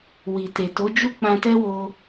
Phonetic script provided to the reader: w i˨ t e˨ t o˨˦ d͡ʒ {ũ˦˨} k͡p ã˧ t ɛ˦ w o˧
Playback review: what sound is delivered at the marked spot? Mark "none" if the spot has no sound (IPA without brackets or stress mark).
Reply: u˦˨